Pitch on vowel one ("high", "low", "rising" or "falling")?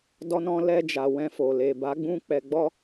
high